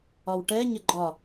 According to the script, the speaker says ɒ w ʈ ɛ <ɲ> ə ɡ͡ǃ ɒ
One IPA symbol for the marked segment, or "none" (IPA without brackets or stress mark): ɲ